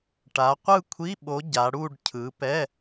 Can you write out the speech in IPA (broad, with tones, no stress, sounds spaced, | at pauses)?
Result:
ʈ a˨˦ qʷ ɯ˥˧ kʷʰ i˧˥˧ ɓ o˨˦ ɟ a˨˦ ɽ u˥˧ ɖ cʰ ɯ˨˦ p ɛ˧˥˧